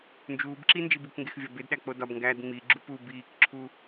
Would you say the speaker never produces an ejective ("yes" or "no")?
yes